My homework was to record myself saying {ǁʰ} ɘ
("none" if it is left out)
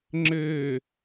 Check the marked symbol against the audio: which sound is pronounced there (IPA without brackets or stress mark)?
ŋ͡ǁ